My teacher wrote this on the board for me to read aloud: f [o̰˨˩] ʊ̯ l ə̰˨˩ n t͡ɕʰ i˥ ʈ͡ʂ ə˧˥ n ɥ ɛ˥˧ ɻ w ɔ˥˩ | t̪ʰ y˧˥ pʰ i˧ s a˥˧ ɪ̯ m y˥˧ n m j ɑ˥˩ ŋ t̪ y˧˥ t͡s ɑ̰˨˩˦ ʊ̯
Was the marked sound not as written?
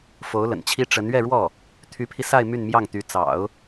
yes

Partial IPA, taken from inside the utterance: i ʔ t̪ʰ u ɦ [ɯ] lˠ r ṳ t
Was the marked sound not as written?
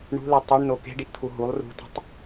yes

